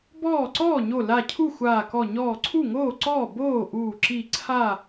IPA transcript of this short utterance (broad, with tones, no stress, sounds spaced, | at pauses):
b ɔː˥˩ ǀ ɔː˥˩ ɲ o˧˩ l a˧˩ cʰ u˥˩ xʷ aː˧˩ k ɔ˧˩ ɲ ɔː˧˩ ǀʰ u˥˩ ŋ oː˥˩ ǀ ɔː˥˩ b oː˥˩ ʔ uː˧˩ ǁ i˧˩ ǀʰ a˥˩